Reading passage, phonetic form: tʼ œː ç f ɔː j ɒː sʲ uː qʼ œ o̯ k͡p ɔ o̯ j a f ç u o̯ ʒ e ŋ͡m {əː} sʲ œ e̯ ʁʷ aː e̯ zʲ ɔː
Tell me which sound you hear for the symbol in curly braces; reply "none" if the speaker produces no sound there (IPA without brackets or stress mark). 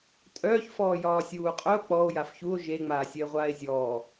aː